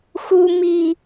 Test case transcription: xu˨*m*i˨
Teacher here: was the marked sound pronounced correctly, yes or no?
yes